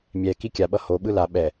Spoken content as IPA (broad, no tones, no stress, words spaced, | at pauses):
mʲɛki kʲaɓʌ hoɓɯ la ɓɛ